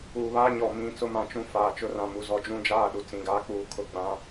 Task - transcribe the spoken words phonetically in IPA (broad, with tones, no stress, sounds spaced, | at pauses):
uː˨ β aː˦ ɲ ɔ˨ m ĩ˦˨ t͡s ʊ˦ m ã˨ t͡ʃ ũ˦ f aː˨ t͡ʃ ʊ˦ r ã˨ m u˨ z ɔ˨ d͡ʒ ũ˦ d͡ʒ aː˦˨ ɗ u˨ t͡s ĩ˨ ɡ aː˦ k͡p uː˨˦ kʰ ʊ˨ ɡ͡b ã˨˦